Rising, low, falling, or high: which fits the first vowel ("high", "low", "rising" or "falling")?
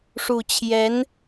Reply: low